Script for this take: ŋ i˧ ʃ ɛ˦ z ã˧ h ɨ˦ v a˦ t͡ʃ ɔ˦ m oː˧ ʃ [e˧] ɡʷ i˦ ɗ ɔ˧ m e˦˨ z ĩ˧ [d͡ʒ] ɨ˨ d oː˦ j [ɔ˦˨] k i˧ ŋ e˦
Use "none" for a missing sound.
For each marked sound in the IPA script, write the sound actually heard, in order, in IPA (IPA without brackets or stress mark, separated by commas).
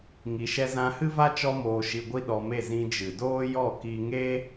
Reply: i˧, d͡ʒ, ɔ˦˨